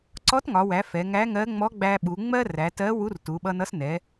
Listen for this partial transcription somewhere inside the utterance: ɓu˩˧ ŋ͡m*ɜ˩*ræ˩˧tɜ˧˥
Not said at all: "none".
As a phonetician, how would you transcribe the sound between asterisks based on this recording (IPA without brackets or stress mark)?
ɜ˥